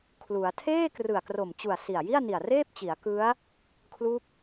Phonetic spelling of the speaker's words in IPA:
kʰ l u˩˦ a̯ tʰ eː˥˩ k r ɯ˨˩ a̯ k r o˨˩ m t͡ɕ u˨˩ a̯ s i˨˩ a̯ j i˥˩ a̯ n i˨˩ a̯ r eː˥˩ p̚ t͡ɕ i˩˦ a̯ k ɯ˦˥ a̯ | kʰ l u˦˥ k̚

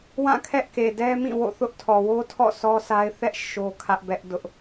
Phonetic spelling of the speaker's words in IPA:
w ã˦˨ kʰ ɛ˦ ʔ k e˨ d ɛ˦ m ĩ˦˨ w o̰˦˨ θ ʊ˦ ʔ tʰ ɔ˨ w o˦ tʰ ɔ̰˦˨ sʰ ɔ˦ s a˦ ɪ̯ θ ɛ˦ ʔ ʃ o˦ kʰ ä˦ ʔ b ɛ˦ ʔ d ʊ˦ ʔ

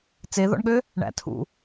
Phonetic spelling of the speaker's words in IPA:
t͡s e ð ɔ̰ ɳ ɠ ø | ɳ æ̰ tʰ ṵ

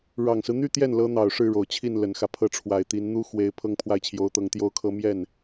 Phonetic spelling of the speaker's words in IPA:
ɻ ɑ˨˩ ŋ s ɹ̩˦ n̪ y˥ t̪ j ɛ˥˩ n l ɤ˧˥ n̪ ɑ˨˩ ʊ̯ ʂ ɻ̩˥˩ ɻ o˨˩ ʊ̯ t͡ɕʰ i˥˩ n l ə˨˩ n x ä˦ pʰ ɤ˥˩ ʈ͡ʂʰ w a˨˩ ɪ̯ t̪ i˧˥ n n̪ u˥ x w e˥ ɪ̯ pʰ ɤ˥ ŋ pʰ w a˥˩ ɪ̯ t͡ɕʰ j o˧˥ ʊ̯ t̪ ɤ˧˥ ŋ t̪ j o˥ ʊ̯ kʰ ɤ˥ m j ɛ˥˩ n

